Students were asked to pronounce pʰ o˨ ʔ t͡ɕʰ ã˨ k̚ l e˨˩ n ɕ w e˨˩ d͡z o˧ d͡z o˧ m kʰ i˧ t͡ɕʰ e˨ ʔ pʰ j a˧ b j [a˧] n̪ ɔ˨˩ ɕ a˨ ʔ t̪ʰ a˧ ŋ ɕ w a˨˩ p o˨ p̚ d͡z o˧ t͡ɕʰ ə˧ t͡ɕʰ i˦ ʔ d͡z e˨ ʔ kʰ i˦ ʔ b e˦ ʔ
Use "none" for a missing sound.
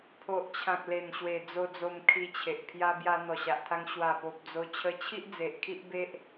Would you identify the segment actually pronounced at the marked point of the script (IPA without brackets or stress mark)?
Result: a˧